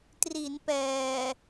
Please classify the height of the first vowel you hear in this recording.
high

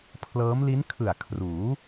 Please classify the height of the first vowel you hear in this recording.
mid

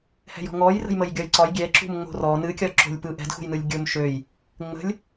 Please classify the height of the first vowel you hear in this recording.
mid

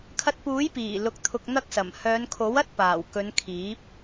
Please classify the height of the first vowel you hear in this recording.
low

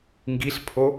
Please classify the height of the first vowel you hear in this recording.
high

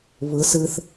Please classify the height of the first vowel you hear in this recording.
high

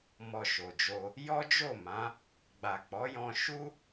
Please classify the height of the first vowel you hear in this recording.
mid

